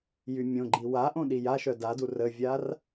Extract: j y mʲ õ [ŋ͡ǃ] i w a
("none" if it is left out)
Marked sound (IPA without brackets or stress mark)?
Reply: ɡ͡ǃ